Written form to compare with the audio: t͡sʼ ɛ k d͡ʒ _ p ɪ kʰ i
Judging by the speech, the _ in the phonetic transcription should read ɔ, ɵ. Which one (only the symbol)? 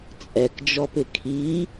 ɔ